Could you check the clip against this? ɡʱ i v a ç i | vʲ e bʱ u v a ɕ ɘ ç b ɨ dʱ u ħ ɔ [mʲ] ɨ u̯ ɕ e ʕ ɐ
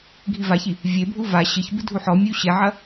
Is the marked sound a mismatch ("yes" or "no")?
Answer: no